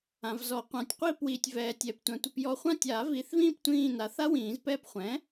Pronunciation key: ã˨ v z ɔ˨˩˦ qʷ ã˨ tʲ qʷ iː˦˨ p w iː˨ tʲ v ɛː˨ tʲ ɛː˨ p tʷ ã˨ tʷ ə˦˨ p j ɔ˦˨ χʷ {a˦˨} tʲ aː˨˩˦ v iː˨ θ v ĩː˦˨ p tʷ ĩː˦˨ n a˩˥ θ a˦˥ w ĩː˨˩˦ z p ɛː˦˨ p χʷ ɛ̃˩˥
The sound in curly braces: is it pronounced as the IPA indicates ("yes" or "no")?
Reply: no